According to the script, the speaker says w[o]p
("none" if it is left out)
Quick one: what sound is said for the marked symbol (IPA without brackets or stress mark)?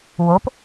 o